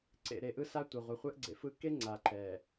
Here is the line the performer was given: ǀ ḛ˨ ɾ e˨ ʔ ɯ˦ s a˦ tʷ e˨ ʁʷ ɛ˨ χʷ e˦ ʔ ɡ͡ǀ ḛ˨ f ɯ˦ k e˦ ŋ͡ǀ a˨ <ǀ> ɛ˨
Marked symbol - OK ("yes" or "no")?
no